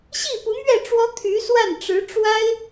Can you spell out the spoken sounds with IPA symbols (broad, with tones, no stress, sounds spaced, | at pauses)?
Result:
ɕ i˥˩ p u˧˥ m ɥ ɛ˥˩ ʈ͡ʂ w ɔ˥ t̪ʰ y˧˥ s w a˥˩ n ʈ͡ʂ ɻ̩˧˥ ʈ͡ʂ w a˥ ɪ̯